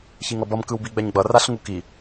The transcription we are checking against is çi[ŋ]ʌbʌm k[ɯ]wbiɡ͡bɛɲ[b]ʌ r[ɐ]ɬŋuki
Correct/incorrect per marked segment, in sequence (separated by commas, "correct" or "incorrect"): correct, correct, incorrect, incorrect